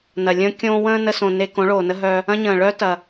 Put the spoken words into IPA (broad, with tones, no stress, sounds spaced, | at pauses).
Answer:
n ɐ˨ lʲ ə̃ː˦ kʲ õː˦ w ə̃ː˦ n ə˧ s õ˨ n e˧ k õ˨˦ ɭ oː˨ n ə˦ ɦ œ˧ | ɐ̃˦ ɲ ə̃ː˨ ɭ œ˦ t ɐ˨